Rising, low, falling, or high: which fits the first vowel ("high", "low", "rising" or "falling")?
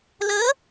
rising